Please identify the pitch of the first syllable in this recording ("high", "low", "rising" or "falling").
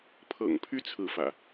low